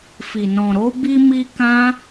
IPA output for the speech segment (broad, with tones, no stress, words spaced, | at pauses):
fi˨nɔ̃˨ɾo˨˦ bi˦mi˦ kã˧